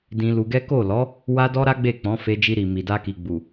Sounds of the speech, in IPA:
d ĩ˧ l u˧ ɡ ɛ˦ k o˦˨ l ɔ˨˦ | w a˦ d ɔ˦ ɾ a˦ ɡ͡b e˦˨ k͡p ɔ̃˨˦ f e˧ d͡ʒ i˧ ɾ i˨ m i˨ d a˧ k i˨ ɡ͡b u˨

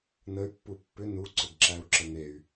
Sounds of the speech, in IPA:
n ə y̯ pː u pː ʏ n u ǀ ʏ ɡ ǁ æ u̯ ǁ ə n̪ e y̯

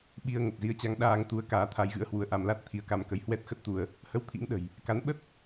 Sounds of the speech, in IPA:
ɓ i˧ ə̯ ŋ ə˨˩ p̚ z i˧ ə̯ t͡ɕ a˧ ŋ ɗ aː˧ ŋ t̪ u˨˦ ə̯ k aː˨˦ t̪ʰ a˨˦ j ɣ ɨ̰˧˥ ə̯ h w u˧ ə̯ ʔ a˧ m l a˦˥ t̚ t̪ʰ i˨˦ ə̯ k a˧ m k ə˧ j h w ɛ˦˥ t̚ x ə˦˥ t̚ t̪ u˧ ə̯ | h ə˧ w t̪ʰ ḭ˧˥ ŋ ɗ ə̤˨˩ j | k a˨˦ n ɓ ə˦˥ t̚

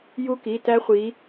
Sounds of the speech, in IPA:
j u˦˥ k i˩˧˩ t æ˦˥ χʷ i˨˦

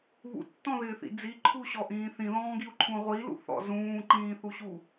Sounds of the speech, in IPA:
β ṵ tː ɔ̃ ð ɪː θ ḭ d͡z i ǃʰ u ɕ ɔ ʔ ĩː θ ĩ ð ɔ̃ː ɡ i u̯ ǃʰ ũ ʁʷ i l ṵ θ ɔ̰ z ũː ǃ ĩː θ u ɕ u

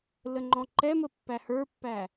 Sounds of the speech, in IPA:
l ə ŋ͡ǃ ɔ̃ ǃ ɛ m ə pː æ h ə˞ pː æ

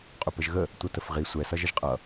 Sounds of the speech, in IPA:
qʼ ʊ p ə ʒ ɣ ə | tʷ ʌ t ə f ʁ i sʷ ɛ s ʌ ʒ ə ʒ qʼ ʌ

